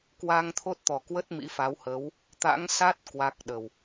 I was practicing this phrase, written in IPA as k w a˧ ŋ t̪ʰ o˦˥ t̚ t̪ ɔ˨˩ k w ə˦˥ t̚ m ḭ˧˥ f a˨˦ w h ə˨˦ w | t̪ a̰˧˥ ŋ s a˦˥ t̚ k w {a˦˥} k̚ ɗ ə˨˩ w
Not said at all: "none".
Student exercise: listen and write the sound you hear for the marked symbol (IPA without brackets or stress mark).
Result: a˦˥